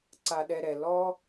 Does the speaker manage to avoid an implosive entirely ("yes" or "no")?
no